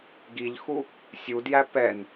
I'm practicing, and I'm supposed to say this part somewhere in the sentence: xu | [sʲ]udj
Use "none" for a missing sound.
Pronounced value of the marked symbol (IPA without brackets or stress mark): sʲ